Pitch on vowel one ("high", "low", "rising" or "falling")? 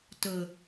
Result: low